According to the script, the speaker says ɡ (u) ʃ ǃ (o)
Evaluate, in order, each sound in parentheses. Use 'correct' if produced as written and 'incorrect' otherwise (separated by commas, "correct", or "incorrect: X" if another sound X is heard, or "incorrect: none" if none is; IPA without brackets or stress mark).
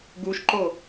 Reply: correct, correct